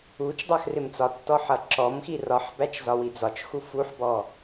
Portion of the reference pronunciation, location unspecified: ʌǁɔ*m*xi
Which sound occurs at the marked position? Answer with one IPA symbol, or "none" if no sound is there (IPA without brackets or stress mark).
m